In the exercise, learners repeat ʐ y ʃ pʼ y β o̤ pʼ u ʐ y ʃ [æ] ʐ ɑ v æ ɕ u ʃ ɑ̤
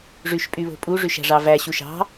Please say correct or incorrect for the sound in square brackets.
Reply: incorrect